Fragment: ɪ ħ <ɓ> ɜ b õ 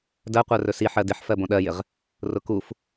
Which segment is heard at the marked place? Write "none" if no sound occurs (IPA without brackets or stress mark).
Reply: f